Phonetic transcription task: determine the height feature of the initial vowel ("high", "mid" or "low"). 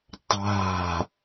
low